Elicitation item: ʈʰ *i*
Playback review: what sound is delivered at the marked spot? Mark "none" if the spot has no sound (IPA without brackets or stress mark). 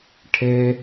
e